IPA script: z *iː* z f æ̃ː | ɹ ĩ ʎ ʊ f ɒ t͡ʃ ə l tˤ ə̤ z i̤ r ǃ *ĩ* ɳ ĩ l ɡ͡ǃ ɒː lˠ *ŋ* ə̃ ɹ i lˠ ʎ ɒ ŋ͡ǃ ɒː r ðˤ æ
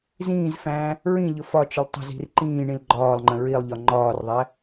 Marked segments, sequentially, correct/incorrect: incorrect: ĩː, incorrect: ĩː, incorrect: ŋ͡ǃ

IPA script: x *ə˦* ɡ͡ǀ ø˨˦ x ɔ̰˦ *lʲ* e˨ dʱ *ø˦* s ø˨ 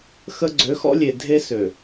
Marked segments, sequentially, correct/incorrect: correct, correct, incorrect: e˦

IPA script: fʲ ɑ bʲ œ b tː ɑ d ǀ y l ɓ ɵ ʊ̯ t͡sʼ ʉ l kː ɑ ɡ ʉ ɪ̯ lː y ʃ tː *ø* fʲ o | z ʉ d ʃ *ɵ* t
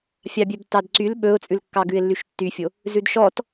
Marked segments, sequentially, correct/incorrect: incorrect: y, incorrect: ɔ

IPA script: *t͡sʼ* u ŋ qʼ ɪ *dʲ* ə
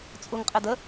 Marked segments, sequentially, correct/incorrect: correct, incorrect: d

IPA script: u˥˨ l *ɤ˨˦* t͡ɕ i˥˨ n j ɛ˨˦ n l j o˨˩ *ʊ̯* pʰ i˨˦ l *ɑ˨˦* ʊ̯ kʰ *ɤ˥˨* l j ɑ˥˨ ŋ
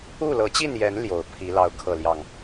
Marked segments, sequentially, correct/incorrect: correct, correct, correct, correct

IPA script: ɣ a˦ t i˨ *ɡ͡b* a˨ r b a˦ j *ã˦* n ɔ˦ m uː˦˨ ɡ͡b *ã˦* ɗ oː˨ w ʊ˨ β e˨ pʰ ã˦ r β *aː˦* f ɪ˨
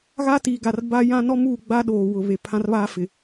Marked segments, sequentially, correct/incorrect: incorrect: ɡ, correct, incorrect: a˦, correct

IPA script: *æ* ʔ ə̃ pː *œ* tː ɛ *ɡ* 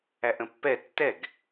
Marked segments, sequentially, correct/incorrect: correct, incorrect: ɛ, correct

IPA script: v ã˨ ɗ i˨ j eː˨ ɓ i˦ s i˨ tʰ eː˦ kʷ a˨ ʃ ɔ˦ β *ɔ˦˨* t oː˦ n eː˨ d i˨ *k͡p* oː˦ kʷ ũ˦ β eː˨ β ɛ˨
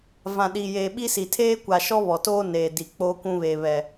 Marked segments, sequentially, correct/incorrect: incorrect: ɔ˨, correct

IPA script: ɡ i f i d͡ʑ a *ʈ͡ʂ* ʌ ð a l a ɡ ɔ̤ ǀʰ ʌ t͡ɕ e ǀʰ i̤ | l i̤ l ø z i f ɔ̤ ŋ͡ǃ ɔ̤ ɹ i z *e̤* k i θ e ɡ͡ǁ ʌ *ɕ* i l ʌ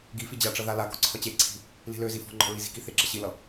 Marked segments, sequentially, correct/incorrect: correct, incorrect: i̤, correct

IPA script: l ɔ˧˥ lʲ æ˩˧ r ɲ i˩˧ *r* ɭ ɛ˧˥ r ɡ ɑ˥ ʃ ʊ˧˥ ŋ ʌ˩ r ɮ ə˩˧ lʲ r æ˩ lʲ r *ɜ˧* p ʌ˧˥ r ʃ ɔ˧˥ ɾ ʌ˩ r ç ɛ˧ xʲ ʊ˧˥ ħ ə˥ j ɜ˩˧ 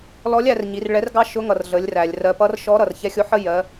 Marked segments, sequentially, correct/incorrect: correct, incorrect: ɜ˩˧

